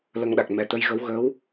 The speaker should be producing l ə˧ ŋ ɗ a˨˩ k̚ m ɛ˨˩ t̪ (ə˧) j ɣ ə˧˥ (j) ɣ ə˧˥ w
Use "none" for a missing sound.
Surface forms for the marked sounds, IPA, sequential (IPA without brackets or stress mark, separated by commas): ə˧, w